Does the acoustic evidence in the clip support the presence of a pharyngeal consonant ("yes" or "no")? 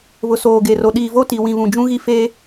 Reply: no